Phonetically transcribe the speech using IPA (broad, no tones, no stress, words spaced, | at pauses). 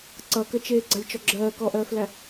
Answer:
ǀʌkət͡ʃeː ɡ͡ǀalʲt͡ʃɔɡ͡ǁɜː kɔʔɜːflæ